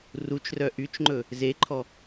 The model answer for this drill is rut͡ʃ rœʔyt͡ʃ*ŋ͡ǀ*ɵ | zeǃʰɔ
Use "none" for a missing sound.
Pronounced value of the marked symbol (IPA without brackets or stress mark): ŋ͡ǃ